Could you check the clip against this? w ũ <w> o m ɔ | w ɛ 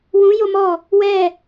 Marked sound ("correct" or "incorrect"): incorrect